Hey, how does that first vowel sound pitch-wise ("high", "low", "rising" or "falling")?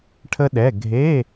high